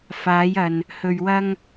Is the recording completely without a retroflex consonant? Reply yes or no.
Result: yes